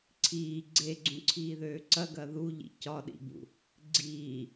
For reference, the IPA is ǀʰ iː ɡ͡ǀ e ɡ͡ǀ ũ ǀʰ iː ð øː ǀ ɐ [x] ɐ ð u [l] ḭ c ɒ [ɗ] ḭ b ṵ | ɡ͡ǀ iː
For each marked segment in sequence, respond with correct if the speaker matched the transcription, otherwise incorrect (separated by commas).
incorrect, incorrect, correct